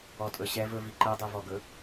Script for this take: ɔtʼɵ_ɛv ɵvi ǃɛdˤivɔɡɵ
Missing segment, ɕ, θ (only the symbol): ɕ